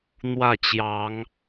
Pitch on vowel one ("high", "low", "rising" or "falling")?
falling